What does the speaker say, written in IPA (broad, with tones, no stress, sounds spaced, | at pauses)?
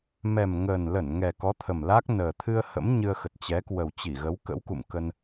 m ɛ˨˩ m ŋ əː˨˩ n l ə˧˩ n ŋ ɛ˨˩ k ɔ˨˦ t̪ʰ ə˨˩ m l a˦˥ k̚ n əː˨˩ t̪ʰ ɨ˧ ə̯ h ə̰˧˥ m ɲ ɨ˧ ə̯ x ə˨˩ t̚ t͡ɕ ɛ˨˦ k w ə˨˩ w t͡ɕ i˧˩ ɣ ə˨˦ w k ə̰˧˥ w k ṵ˧˨ m k ə˧ n